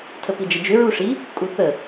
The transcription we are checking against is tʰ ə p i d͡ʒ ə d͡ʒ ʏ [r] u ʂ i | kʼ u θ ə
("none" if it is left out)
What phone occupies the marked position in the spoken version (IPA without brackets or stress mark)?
ɹ